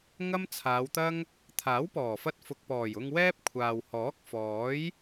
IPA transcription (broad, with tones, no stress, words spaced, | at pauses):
ŋɐ˥mt͡sʰaː˨˧wt̪ɐ˥ŋ | t̪ʰaː˨˥wpɔː˨˩fɐ˧t̚ fʊ˨k̚pɔː˨˩jʊ˧ŋ wɛː˥p̚kʷʰaː˨w hɔː˨˥k̚fɔː˨˥j